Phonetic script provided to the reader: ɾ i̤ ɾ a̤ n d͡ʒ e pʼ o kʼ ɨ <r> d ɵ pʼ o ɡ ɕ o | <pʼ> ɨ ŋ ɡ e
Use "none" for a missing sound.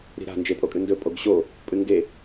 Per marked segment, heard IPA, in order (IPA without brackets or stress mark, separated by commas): n, pʼ